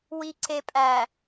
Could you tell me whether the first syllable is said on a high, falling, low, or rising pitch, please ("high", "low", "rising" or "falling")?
low